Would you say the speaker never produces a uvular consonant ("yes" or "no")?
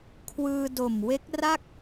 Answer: yes